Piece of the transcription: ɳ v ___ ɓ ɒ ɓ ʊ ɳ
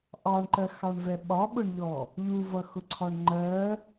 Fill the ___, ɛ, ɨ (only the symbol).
ɛ